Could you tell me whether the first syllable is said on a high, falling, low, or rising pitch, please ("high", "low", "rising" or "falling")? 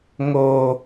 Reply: high